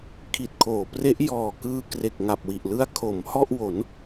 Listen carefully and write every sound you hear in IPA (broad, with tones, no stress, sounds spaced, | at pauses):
kʰ i˨˩ t̚ kʰ oː˩˦ p r e˦˥ ʔ j ɔː˨˩ k ɯː˧ k r e˨˩ k̚ ŋ a˨˩ p̚ w i˨˩ ʔ l ɯ˦˥ a̯ kʰ o˩˦ m h ɔ˥˩ ʔ w o˩˦ n